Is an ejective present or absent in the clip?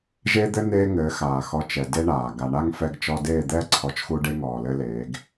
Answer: absent